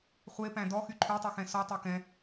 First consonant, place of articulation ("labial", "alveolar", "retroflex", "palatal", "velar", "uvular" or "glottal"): uvular